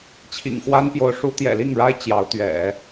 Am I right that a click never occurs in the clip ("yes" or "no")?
yes